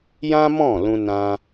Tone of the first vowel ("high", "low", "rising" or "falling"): high